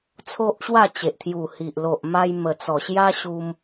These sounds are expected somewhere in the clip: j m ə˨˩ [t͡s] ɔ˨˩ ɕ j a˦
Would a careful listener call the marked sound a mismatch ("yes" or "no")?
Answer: no